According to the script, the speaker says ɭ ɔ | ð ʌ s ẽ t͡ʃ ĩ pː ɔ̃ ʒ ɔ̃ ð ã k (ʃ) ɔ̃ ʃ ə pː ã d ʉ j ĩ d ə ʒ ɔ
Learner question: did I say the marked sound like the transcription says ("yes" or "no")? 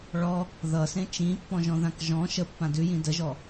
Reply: no